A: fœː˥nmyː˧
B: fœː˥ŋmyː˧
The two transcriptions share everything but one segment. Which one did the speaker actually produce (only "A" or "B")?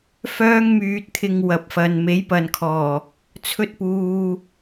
B